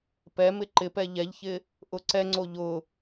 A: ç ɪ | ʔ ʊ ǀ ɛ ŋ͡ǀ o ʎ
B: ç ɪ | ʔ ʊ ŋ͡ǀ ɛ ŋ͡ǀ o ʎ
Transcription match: A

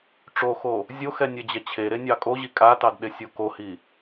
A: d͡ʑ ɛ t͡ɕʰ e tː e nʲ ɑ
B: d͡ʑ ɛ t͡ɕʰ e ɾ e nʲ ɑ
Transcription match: B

